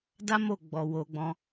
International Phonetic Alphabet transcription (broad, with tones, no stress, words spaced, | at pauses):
da˦mo˦˨ ɡ͡bɔ˨wo˨ɡ͡bɔ̃˧